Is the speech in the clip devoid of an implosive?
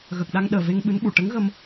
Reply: no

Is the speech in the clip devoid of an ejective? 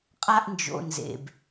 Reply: no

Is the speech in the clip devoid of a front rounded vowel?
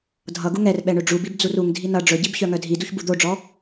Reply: no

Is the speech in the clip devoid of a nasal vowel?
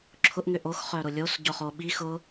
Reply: yes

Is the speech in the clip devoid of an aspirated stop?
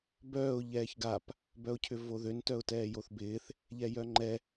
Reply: no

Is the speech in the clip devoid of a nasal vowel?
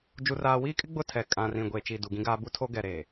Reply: no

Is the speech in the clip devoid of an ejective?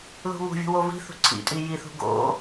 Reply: no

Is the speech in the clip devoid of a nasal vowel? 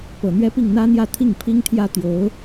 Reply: yes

